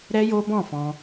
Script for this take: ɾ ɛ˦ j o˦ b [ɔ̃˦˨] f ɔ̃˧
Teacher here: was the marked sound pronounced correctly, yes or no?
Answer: yes